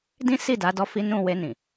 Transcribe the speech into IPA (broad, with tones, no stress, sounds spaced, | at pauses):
d ĩ˦ s i˦˨ d a˨˦ d ɔ˦ f i˦ n ũ˦˨ w e˧ n ĩ˨